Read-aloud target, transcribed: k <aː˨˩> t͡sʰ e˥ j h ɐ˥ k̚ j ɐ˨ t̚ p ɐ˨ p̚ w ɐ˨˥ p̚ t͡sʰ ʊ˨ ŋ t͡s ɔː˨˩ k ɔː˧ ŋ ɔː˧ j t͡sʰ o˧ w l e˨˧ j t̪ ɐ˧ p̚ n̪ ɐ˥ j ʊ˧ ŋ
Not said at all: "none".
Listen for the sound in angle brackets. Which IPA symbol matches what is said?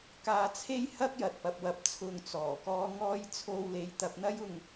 aː˧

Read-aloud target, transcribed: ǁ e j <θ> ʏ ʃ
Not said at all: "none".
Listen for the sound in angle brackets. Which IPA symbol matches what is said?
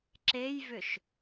v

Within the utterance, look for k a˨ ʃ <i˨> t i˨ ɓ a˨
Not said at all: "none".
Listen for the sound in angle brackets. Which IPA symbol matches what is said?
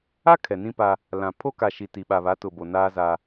i˨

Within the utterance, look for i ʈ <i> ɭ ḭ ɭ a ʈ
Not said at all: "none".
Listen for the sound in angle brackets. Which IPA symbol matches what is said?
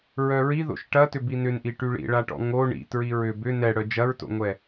y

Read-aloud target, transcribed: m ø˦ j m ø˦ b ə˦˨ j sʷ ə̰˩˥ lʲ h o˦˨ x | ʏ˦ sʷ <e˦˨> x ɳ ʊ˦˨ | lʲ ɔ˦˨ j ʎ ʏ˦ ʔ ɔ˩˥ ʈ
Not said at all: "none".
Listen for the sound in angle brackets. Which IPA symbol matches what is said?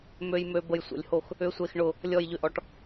e˦˨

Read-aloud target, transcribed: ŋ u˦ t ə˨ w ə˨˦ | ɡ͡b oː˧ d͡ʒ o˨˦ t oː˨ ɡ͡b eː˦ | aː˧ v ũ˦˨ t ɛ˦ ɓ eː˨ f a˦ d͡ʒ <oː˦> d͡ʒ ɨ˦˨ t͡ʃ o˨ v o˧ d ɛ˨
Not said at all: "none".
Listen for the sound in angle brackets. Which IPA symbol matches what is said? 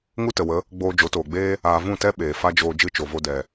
oː˧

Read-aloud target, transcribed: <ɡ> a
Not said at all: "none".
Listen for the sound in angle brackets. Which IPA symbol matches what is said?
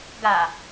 ɡ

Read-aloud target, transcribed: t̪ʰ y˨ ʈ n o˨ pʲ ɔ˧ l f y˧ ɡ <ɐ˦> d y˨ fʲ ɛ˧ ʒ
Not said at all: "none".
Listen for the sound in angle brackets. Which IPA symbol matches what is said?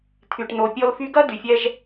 ɐ˦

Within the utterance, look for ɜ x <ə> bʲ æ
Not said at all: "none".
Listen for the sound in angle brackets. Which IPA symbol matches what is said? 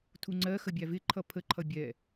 ə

